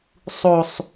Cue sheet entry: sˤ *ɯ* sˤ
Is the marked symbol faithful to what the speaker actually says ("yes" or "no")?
no